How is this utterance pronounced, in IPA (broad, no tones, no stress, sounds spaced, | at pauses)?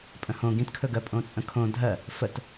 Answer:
pʼ ə̃ h õ ɡ ĩ t kʰ ɵ ɡ ɜ pʼ õ t͡sʼ ə̃ kʰ õ dʱ ɜ | f ə t